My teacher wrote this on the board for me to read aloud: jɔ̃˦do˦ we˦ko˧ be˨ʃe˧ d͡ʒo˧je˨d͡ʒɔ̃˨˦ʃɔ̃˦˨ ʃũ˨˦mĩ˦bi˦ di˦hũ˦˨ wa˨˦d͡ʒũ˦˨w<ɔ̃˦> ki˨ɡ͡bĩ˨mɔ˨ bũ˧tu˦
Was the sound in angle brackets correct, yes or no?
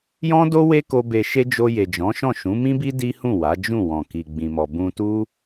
no